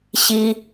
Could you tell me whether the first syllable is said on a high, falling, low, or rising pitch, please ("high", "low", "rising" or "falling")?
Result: high